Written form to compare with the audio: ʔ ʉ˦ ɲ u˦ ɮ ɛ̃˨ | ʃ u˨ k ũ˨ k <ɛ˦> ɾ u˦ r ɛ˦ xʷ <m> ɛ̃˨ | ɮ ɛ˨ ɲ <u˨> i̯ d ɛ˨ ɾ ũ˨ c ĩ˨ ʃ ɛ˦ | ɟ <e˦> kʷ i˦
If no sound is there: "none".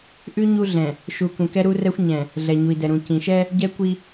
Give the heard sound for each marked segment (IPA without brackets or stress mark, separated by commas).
ɛ˦, ɲ, u˨, ɛ˦